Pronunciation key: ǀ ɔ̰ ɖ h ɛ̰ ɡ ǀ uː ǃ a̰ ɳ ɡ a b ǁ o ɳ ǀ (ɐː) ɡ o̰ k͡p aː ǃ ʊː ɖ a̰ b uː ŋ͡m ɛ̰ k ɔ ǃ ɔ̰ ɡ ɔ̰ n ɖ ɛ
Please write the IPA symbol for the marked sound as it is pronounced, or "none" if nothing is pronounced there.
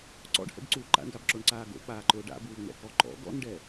aː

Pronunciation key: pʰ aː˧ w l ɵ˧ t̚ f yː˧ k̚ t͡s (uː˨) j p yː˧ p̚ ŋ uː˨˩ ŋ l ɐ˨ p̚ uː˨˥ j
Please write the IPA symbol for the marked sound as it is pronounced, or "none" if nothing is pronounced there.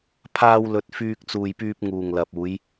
uː˨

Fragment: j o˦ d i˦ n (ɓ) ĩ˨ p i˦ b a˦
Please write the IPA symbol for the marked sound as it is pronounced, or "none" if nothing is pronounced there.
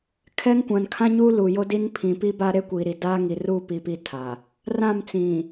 pʰ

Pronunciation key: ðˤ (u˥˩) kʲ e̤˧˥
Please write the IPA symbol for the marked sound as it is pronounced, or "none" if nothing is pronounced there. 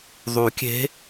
u˨˩˦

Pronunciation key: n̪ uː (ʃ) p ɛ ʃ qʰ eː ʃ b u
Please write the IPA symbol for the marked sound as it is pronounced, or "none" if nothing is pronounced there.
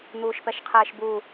ʃ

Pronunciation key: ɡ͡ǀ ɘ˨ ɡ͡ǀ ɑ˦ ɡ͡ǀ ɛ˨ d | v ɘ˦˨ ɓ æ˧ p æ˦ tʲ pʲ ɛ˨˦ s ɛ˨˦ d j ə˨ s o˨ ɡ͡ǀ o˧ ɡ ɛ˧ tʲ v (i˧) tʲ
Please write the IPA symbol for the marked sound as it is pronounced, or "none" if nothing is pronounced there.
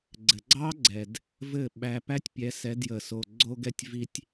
i˧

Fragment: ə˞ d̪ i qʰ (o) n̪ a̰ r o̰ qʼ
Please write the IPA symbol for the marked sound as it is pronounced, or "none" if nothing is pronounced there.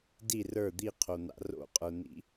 o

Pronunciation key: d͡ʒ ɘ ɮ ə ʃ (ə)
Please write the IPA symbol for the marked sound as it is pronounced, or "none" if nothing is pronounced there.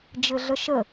ə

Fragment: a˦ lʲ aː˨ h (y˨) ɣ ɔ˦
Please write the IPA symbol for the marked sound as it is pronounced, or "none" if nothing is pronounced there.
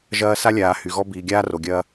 y˨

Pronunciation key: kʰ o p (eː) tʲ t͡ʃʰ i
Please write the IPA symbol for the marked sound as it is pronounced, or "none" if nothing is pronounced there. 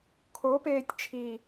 eː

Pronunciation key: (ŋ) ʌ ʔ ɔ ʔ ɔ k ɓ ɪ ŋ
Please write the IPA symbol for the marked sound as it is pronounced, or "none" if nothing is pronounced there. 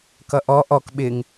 k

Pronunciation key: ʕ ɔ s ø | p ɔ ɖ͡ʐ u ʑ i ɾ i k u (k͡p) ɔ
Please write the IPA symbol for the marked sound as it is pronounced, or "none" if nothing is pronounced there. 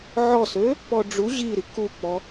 k͡p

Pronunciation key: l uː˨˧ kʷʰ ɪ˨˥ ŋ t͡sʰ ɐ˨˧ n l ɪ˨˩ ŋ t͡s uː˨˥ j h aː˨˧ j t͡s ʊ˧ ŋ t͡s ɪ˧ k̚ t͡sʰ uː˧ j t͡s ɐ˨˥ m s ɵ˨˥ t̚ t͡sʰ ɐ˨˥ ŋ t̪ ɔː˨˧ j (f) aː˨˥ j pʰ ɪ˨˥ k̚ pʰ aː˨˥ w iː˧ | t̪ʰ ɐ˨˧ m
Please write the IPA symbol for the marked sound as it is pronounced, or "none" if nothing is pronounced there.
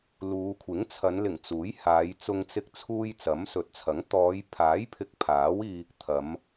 pʰ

